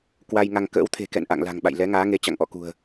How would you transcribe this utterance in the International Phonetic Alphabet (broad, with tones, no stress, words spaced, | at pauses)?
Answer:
kwa˧jŋa˧ŋ kə̰ː˧˥wt̪ʰe̤˨˩kɛ̰˧˨n ʔa̰˧˨ŋla̤˨˩ŋɓa̰˧˨j lɛ˨˦ŋaː˨˦ŋe˨˦ t͡ɕa̰˧˨ŋʔɔ̰˧˨kṳ˨˩ə̯